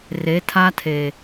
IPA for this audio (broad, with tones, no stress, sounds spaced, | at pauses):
r e˨˦ tʰ a˦ tʰ e˨